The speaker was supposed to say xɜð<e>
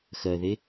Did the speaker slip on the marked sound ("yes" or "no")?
no